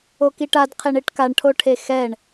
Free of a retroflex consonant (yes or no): no